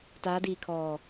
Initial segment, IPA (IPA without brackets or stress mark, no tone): t